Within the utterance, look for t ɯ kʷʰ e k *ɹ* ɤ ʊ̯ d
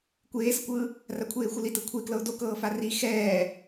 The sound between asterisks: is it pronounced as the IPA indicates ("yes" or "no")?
no